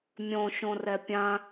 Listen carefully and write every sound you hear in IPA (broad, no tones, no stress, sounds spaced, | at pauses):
mʲ õ ʃ õ r ɛ pʲ ã